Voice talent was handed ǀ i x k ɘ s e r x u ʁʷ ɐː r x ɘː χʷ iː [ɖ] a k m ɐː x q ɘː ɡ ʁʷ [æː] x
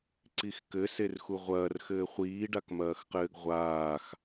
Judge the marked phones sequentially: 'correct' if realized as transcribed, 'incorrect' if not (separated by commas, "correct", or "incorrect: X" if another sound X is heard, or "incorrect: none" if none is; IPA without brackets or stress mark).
correct, incorrect: aː